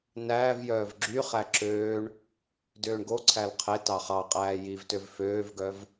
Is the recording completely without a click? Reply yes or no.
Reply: no